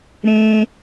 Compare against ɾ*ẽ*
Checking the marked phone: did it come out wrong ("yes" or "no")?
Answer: no